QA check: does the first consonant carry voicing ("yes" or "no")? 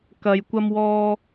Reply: no